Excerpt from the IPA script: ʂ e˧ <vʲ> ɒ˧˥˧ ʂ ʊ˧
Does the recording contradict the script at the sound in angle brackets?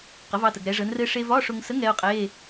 yes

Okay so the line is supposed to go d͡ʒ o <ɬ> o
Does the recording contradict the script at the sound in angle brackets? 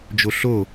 no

